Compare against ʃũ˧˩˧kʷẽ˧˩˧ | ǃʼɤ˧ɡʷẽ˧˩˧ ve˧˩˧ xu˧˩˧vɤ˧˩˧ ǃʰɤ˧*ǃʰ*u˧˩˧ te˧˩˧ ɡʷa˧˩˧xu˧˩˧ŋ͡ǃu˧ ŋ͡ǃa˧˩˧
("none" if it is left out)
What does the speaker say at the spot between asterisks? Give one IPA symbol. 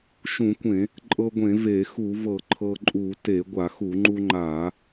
ǃʼ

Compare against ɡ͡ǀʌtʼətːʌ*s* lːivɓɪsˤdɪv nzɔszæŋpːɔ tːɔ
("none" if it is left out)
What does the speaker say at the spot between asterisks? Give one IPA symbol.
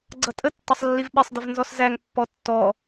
sˤ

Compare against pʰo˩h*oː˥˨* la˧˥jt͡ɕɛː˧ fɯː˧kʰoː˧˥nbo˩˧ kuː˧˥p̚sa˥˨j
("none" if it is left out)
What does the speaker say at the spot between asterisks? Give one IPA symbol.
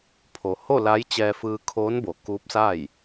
o˥˨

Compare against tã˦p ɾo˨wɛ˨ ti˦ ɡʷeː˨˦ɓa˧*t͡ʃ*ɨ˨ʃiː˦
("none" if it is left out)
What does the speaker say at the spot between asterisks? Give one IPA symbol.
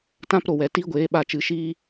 t͡ʃ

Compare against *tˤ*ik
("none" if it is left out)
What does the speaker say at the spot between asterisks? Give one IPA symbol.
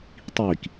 tˤ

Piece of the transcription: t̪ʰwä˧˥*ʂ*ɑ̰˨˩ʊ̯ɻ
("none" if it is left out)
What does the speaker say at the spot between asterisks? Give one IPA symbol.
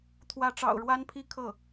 ʈ͡ʂ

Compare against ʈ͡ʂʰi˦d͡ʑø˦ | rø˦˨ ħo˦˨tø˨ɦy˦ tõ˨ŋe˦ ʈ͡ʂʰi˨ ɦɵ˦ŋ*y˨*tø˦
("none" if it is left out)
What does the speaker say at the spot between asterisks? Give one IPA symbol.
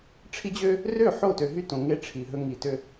i˨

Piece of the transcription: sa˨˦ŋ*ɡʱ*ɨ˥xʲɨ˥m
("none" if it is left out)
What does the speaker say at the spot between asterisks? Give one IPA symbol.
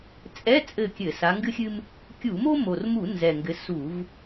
ɡ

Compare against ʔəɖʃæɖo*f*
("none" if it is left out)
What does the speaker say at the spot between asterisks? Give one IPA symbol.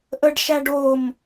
m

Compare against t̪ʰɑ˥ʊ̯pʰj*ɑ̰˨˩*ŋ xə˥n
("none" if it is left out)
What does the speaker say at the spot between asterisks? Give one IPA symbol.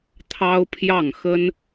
ɑ˥˩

